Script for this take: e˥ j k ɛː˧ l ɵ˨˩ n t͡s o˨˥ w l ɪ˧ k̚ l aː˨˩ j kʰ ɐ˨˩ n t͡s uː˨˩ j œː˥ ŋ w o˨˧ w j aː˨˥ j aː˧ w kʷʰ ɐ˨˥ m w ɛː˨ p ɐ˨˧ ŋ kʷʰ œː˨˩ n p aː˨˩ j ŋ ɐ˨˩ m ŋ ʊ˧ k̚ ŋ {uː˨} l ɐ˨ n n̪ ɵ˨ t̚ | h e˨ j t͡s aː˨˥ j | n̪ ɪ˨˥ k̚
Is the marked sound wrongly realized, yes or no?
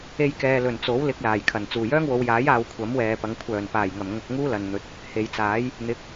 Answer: yes